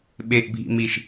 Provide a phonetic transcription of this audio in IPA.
ɓeʔbʱḭmiʃ

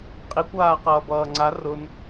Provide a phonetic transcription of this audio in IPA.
qʼikʷaːqʌːbʌː ŋ͡ǀa rʊn

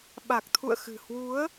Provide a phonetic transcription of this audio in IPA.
ɓa˨˩k̚t̪ʰṵ˧˨ə̯xɨ̤˨˩ hwu˨˦ə̯

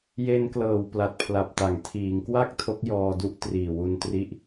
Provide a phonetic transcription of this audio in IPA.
je˧n klɤː˨˩wpla˨˩t̚ pʰla˨˩p̚ta˩˦ŋ tʰiː˩˦ŋkwa˥˩k̚ tʰo˦˥k̚jɔː˧du˥˩ʔ triː˨˩wu˧ntri˦˥ʔ

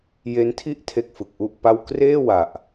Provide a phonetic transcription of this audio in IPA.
je˦˥ntʰi˥˩ʔ tʰe˥˩k̚fɯ˨˩k̚ʔu˥˩ʔpa˥˩w kreː˥˩ wa˨˩ʔ

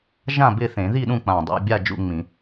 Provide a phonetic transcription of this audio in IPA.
ʒã˥˨bɪ˥˨θẽ˨˩˦ ði˥˨ɗũ˥˨ k͡pã˨˩dˤḛ˥˨ bʲa˥˨d͡ʒṵ˥˨ŋ͡mĩ˨˩˦

